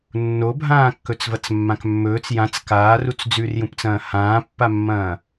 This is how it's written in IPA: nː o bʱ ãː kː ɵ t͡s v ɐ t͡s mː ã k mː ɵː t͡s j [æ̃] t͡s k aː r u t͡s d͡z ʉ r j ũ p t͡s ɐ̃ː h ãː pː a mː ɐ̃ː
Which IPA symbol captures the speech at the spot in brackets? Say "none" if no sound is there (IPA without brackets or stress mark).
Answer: ã